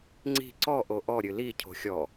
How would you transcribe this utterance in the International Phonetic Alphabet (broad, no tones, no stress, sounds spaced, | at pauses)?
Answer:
ŋ͡ǀ i̤ ǀ ɔ ʔ o ʔ ɔ ɾʲ ɨ l i cʰ o̤ xʲ ɔ